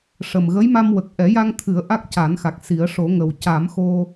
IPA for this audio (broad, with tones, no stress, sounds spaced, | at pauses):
ʂ ə˨˩ m ɣ ə˧˥ j m a˧ m w ə˨˩ k̚ ʔ ɛ˨˩˦ j a˧ ŋ t̪ʰ ɨ˨˩˦ ə̯ ʔ a˦˥ k̚ c a˨˩˦ n x a˨˩ k̚ s i˨˩˦ ə̯ ʂ o˨˩˦ ŋ ə˨˩ w c a˨˩˦ m x o˧